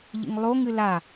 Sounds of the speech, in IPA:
ʎḭŋlˠoŋɨ la

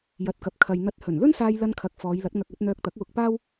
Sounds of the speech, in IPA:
jɐ˨t̚kɐ˨p̚kʰɐ˨j n̪ɐ˨˥t̚hɵ˨˩nlɵ˥nsaː˧j lɐ˧nkʰɐ˨k̚ fɔː˨˧jlɐ˨˥t̚ŋɐ˧k̚ɐ˨˥t̚ n̪œː˧k̚t̪ɐ˨˥k̚wʊ˧k̚paː˥w

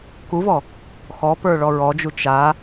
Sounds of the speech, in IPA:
kuvɔ | xɔpə˞ ɭɔɹɔd͡ʒu t͡ʃa

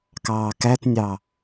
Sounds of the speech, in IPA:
kɑːkætnʲɑ

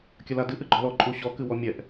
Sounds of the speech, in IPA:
kʲɐladɨ ʔɨɡ͡ǃɔlɔ ǃʼuɕɔ kɨwɔmʲɛʔ

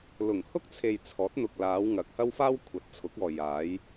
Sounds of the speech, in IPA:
lʊ˨˩ŋ hʊ˥k̚t͡sʰe˨j t͡sʰɔː˨˥t̚n̪ʊ˨k̚laː˨˧wŋɐ˨k̚ hɐ˥wfaː˥wkʷʰɐ˨˥t̚t͡sʰʊ˨˥k̚ ɔː˨jaː˨˧j

